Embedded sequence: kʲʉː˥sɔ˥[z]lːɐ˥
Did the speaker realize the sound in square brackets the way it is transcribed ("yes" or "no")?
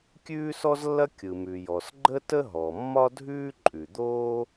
yes